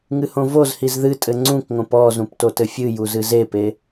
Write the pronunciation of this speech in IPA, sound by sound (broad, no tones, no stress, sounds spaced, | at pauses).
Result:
ŋ ɨ h õ v o z h i z ð ɨ tʼ ɘ ŋ͡ǀ ũ k ŋ õ p ɔ z ũ p t o t ɘ fʲ ɨ j u z ɨ z e p e